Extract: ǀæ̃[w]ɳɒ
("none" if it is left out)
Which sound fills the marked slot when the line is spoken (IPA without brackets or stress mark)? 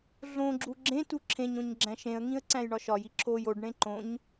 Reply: j